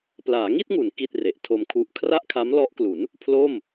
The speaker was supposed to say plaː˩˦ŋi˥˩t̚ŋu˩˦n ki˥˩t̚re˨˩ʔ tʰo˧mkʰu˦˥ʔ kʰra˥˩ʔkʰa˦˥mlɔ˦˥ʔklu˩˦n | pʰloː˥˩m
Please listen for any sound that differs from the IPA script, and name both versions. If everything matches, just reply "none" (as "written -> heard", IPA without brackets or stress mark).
none